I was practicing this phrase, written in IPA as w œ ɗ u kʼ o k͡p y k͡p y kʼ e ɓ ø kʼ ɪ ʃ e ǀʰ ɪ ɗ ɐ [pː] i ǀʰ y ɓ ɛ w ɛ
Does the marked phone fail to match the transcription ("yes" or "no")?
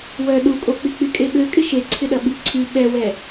yes